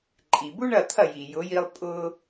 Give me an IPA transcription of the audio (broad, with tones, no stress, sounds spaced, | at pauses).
ǃʼ i˩ b u˥ ɳ ɐ˥˩ t̪ʰ ɐ˥˩ j i˩ j ʊ˩˥ j i˧ lˠ pʼ ʊ˧